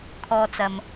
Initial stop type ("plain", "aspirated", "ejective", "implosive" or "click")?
aspirated